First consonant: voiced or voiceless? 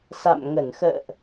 voiceless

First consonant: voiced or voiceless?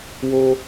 voiced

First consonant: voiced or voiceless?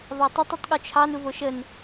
voiced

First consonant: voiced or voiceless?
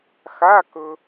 voiceless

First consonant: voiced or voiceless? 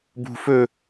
voiced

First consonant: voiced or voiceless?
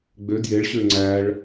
voiced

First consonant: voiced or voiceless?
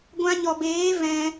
voiced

